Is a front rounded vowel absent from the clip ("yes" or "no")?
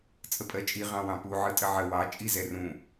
yes